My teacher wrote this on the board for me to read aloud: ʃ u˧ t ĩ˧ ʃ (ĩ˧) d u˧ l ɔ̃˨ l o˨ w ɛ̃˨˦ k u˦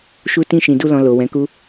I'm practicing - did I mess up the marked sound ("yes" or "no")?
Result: yes